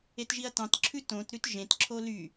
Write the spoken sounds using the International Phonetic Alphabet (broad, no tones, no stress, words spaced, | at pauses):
etʒiɐ̯tɑ̃tǁʰʉ tõtɾʉt ʒẽtǁʰo ly